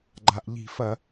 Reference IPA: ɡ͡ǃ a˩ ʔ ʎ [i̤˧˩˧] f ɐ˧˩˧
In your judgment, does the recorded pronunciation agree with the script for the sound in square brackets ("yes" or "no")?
yes